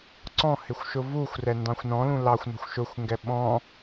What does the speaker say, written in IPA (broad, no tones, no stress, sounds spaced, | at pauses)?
ǀ ɔ̃ h ɪ xʷ ʃ ʊ v u xʷ r ɛ n d ɑ̃ xʷ n ɔ̃ l ũ l ɑ xʷ n ɔ̤ xʷ ʃ ʊ xʷ ŋ ɡ ɛ ɓ ɔ̃